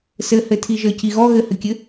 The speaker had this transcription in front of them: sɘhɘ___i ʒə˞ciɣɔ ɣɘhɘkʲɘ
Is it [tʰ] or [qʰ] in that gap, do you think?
tʰ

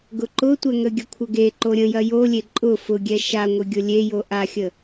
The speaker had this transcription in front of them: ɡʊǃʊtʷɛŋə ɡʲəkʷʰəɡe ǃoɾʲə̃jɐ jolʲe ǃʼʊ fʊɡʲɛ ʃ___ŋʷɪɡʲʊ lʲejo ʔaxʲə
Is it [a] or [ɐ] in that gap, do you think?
a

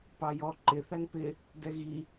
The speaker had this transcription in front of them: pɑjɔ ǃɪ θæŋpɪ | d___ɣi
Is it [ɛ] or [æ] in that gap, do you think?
ɛ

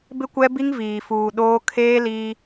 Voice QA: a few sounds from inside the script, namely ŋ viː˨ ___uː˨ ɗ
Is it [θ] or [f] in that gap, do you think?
f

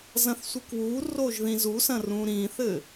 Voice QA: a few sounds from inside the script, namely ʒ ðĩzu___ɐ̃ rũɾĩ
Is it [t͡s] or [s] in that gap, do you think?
s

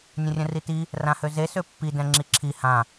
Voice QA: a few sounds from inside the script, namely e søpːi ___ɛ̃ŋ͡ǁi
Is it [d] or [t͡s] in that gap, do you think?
d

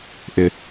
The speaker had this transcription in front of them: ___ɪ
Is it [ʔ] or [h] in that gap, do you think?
ʔ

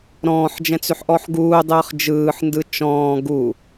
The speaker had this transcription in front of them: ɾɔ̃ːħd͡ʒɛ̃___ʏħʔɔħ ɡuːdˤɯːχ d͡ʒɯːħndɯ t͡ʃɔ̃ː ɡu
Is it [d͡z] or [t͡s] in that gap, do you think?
t͡s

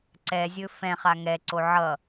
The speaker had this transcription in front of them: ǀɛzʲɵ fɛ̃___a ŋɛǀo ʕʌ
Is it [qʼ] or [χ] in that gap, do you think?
χ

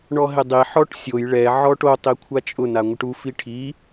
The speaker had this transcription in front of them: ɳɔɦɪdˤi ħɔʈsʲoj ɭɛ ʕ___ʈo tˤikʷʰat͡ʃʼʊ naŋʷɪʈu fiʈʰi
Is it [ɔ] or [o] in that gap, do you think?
ɔ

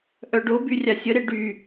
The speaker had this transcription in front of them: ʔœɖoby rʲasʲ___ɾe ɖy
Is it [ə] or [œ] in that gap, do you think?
ə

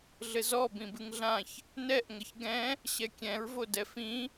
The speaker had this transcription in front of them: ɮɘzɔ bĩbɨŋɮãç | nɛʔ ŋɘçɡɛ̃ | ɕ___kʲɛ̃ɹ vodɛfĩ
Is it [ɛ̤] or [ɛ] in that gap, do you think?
ɛ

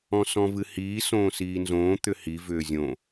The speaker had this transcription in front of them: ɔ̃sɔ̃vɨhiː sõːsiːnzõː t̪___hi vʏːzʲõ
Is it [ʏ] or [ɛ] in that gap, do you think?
ʏ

